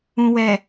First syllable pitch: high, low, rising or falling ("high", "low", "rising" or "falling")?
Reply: low